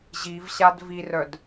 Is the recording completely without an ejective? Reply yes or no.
yes